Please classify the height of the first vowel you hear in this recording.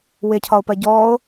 high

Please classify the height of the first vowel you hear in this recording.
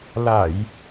low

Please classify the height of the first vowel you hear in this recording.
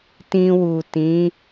high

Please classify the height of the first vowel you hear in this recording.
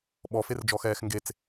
mid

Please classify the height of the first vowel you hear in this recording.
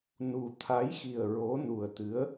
high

